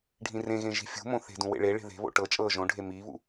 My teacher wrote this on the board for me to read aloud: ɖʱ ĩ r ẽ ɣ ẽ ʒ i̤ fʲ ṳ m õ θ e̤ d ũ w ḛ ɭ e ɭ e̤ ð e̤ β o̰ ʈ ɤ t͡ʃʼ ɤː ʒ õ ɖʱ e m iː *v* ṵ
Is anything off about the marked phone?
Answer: yes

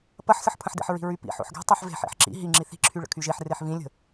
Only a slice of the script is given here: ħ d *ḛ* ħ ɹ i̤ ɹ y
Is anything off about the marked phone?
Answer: no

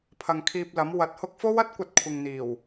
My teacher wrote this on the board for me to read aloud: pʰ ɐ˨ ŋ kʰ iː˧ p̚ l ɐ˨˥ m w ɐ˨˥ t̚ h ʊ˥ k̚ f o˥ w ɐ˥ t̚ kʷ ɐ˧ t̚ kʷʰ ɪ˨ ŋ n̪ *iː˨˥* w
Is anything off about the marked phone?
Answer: yes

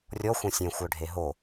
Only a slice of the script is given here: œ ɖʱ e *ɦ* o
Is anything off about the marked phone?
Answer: no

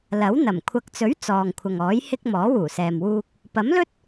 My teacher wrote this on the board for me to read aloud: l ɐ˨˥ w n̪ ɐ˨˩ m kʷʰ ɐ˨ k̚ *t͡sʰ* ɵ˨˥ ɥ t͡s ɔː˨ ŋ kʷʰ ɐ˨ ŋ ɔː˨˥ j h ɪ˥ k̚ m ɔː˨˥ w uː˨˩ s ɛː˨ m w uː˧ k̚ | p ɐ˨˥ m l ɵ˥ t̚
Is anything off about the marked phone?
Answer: yes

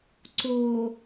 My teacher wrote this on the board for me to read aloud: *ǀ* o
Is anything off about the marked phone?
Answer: no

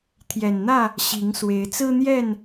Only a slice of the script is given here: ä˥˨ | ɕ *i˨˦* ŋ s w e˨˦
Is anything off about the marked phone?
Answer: no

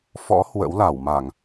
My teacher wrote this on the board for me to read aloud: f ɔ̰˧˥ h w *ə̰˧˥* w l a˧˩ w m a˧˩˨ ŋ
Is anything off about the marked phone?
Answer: no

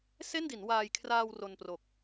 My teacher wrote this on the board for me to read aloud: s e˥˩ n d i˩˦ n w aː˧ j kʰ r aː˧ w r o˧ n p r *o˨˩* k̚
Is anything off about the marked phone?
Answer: no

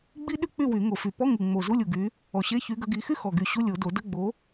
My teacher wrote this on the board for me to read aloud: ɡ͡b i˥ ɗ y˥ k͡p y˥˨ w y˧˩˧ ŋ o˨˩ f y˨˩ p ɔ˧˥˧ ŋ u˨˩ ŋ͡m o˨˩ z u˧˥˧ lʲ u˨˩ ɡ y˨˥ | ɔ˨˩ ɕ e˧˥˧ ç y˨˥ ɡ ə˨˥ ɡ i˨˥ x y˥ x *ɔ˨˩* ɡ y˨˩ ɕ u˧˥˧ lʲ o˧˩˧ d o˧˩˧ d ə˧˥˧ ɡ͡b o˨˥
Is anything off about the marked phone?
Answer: no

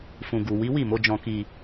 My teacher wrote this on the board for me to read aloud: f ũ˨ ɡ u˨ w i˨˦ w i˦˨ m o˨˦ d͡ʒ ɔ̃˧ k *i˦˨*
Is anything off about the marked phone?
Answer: yes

